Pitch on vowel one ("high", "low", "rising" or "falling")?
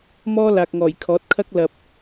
high